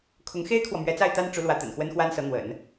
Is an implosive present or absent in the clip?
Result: absent